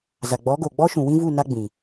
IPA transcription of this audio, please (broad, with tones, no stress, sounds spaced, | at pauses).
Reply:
z a˨ ɡ͡b ɔ˨˦ ɡ o˨ ɡ͡b ɔ˦ ʃ ũ˨ w ĩ˦ v u˦˨ n a˦ ɡ͡b ĩ˨